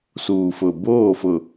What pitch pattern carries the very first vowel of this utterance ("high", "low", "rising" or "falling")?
low